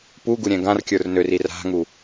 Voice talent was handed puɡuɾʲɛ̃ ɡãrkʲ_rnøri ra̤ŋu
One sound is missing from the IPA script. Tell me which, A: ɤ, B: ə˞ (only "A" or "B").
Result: B